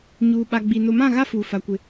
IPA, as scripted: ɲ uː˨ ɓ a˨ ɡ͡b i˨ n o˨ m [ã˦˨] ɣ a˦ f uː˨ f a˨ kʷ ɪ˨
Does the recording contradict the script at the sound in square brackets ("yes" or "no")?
no